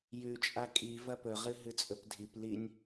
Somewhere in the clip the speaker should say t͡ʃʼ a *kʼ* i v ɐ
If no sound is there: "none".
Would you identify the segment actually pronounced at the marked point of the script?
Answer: kʼ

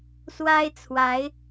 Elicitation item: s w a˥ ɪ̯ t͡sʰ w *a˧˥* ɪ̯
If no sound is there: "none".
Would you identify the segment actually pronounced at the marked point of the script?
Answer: a˧˥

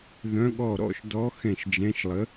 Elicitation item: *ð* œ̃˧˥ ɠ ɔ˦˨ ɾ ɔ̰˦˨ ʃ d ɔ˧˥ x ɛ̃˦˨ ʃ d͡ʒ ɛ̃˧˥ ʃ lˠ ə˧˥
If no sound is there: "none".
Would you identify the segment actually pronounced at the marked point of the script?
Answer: ð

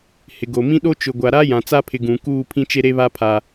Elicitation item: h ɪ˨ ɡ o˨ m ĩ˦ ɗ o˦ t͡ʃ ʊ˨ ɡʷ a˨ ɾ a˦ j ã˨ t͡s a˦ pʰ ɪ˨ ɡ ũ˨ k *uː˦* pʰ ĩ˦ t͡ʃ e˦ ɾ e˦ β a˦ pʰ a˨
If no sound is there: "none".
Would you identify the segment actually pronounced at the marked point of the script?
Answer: uː˦˨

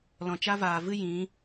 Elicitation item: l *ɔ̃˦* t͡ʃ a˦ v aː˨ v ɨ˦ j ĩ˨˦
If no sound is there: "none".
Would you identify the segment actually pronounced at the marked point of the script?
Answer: ɔ̃˨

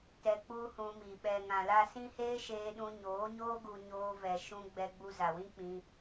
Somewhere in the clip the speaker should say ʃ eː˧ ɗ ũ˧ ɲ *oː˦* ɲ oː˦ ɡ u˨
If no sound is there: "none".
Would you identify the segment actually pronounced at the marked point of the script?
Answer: oː˨˦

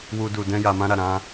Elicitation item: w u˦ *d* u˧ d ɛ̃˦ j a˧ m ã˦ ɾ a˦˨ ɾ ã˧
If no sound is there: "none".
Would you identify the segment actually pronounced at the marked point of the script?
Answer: d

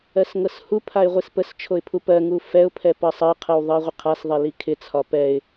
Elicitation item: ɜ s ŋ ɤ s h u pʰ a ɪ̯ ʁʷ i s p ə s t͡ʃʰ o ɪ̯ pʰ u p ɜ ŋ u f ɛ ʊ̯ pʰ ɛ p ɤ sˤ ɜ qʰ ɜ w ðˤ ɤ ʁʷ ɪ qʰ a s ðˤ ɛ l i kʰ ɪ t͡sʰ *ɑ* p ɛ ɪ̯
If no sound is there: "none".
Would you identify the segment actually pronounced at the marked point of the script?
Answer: ɒ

